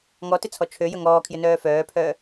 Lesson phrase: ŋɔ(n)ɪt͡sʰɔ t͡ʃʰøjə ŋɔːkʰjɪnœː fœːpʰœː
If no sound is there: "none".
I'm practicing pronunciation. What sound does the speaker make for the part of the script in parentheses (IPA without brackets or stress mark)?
t